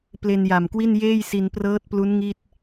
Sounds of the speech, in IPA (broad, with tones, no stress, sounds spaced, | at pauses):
p l e˧ n j a˨˩ m k w i˥˩ n j eː˥˩ j s i˧ n p r ɤː˦˥ t̚ p l u˦˥ n ŋ i˥˩ t̚